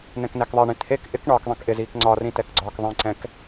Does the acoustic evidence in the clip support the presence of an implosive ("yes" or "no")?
no